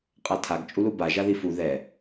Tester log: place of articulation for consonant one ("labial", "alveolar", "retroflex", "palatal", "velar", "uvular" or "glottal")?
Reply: uvular